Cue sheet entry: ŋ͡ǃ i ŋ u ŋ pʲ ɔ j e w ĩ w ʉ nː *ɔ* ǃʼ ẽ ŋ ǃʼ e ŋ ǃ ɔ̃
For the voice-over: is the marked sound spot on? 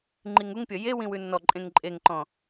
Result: yes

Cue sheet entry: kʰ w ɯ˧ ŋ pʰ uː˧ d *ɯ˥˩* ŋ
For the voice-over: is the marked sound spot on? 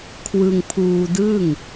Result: yes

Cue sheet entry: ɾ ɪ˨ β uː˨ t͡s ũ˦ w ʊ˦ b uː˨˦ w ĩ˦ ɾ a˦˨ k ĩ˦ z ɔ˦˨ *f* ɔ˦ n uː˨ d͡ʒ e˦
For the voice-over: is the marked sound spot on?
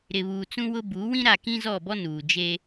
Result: no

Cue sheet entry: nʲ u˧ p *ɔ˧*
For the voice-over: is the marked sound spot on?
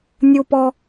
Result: yes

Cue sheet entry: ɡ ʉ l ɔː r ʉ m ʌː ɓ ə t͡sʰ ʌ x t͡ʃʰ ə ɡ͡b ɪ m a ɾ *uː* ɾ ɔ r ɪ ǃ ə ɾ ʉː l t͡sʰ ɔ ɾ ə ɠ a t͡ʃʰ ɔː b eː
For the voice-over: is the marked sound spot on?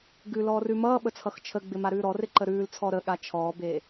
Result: no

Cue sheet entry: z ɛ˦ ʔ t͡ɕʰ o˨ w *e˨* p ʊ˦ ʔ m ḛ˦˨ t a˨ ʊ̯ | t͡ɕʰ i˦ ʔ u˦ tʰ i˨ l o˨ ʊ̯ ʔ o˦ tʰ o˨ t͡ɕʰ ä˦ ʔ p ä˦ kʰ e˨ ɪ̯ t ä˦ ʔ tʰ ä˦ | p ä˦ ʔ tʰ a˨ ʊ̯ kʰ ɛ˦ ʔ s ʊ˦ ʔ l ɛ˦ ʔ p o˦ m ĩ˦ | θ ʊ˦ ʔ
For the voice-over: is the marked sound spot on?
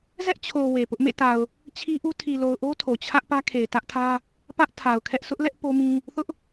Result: yes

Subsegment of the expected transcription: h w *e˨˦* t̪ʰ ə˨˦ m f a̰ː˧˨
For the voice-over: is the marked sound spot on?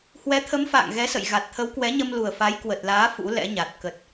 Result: no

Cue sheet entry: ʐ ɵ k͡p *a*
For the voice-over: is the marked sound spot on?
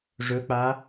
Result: yes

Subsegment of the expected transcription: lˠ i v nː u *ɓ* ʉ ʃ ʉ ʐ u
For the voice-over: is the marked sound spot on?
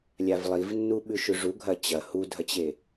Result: yes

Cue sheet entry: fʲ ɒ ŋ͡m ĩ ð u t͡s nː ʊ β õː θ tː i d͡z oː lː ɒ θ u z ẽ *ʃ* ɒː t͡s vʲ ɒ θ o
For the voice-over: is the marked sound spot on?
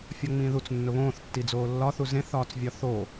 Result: no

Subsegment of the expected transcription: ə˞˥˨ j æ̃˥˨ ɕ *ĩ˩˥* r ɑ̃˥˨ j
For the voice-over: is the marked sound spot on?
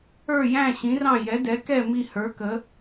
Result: yes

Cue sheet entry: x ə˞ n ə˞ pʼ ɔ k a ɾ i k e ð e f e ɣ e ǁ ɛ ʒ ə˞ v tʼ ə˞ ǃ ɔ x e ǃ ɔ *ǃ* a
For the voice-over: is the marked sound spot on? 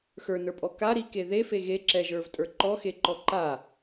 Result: yes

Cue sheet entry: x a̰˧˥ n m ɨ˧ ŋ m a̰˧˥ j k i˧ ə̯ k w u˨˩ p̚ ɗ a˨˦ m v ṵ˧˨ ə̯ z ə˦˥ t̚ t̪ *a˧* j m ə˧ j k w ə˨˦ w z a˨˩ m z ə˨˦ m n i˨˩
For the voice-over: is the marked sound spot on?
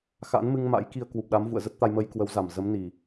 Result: yes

